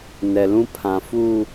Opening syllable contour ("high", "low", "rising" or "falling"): low